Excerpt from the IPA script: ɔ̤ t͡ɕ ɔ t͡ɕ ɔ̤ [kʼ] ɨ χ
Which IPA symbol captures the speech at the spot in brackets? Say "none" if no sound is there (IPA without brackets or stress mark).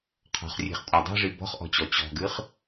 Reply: ɡ